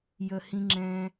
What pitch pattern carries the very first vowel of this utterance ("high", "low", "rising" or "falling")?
low